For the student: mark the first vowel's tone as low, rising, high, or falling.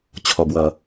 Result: low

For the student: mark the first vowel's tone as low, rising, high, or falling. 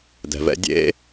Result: low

